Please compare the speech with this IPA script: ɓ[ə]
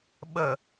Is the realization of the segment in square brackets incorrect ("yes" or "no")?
no